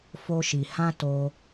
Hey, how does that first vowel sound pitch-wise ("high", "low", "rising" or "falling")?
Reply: high